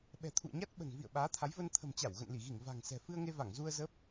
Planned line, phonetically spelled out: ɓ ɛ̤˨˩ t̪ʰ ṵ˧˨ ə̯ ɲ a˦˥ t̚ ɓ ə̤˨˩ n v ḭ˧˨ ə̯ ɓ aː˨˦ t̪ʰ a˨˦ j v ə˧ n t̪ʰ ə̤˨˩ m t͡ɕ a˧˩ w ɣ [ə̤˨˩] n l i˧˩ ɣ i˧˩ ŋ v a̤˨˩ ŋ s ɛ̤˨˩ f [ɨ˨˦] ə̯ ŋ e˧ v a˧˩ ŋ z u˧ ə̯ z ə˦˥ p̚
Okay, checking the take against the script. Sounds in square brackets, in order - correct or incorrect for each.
incorrect: ə̰˧˨, incorrect: ɨ˧

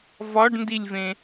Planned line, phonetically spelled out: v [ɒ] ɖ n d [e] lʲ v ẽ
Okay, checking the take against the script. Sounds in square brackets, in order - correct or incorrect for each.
correct, incorrect: i

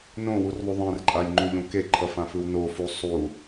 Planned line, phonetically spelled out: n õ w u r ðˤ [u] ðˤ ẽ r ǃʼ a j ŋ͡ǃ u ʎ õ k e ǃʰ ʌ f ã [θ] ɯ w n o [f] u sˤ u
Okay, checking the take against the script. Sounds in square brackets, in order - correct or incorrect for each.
correct, incorrect: f, correct

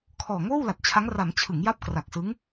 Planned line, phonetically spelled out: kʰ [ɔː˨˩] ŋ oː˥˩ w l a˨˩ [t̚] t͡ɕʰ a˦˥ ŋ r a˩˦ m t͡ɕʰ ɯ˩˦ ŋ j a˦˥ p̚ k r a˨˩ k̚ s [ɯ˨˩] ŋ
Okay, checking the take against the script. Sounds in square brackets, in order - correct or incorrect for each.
correct, correct, incorrect: ɯ˦˥

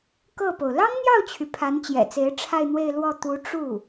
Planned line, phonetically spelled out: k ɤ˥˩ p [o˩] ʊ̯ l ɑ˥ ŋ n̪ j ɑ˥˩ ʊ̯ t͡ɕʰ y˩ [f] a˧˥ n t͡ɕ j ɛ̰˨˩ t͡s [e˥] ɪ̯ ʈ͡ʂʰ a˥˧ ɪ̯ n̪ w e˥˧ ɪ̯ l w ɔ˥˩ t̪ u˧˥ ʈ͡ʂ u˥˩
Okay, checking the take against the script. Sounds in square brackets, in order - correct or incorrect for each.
correct, incorrect: pʰ, incorrect: e˧˥

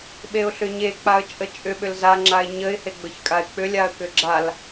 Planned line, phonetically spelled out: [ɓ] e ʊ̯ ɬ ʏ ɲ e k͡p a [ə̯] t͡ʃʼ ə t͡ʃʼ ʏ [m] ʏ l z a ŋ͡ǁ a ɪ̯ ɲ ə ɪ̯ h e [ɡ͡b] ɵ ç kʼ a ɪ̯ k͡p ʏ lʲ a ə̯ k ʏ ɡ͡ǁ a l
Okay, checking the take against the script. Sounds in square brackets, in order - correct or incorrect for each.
correct, correct, incorrect: ɓ, correct

